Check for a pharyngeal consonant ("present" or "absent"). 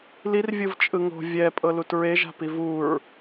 absent